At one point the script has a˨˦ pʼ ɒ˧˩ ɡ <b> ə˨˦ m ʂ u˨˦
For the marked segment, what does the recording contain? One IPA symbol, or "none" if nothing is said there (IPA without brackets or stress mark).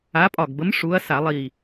b